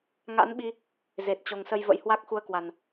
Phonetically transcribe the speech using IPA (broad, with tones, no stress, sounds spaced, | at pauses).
ŋ a̰˧˥ n ɓ i˧ | z e˨˩ t̚ t͡ɕ o˨˩ ŋ s ə˧ j v ə̰˧˥ j h w a˦˥ k̚ x u˧ ə̯ k w a˨˩ n